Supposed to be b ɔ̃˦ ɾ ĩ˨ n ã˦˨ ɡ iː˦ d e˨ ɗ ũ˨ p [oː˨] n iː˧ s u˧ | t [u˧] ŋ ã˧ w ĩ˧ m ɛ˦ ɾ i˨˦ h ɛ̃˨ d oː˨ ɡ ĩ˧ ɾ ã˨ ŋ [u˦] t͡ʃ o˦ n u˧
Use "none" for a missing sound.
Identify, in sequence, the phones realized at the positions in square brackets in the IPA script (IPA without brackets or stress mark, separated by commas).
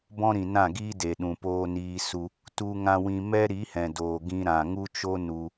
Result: oː˧, u˧, u˦